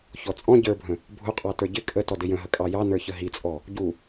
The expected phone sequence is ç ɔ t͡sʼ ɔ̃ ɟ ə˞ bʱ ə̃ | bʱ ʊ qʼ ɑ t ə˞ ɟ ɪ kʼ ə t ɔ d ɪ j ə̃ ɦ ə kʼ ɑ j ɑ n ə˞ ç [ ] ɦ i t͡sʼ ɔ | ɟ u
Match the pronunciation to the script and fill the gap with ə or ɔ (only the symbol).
ə